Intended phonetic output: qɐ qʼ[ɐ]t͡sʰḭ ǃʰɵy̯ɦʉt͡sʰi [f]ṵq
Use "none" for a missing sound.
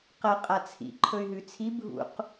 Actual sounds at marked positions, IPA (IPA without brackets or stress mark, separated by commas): a, bʱ